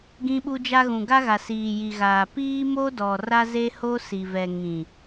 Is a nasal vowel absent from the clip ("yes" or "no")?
no